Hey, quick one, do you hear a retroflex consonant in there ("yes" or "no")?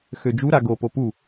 no